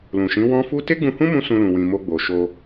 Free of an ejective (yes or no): yes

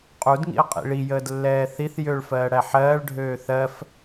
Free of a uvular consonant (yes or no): no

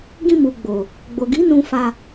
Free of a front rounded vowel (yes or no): yes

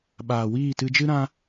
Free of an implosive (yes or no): no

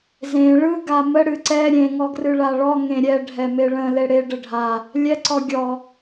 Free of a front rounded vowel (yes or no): yes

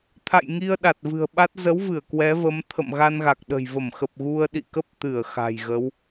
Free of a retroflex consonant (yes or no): yes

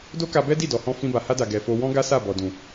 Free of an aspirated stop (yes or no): yes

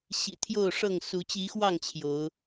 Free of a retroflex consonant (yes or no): no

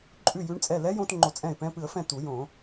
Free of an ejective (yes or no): no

